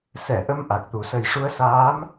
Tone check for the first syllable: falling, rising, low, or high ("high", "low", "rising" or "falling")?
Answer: low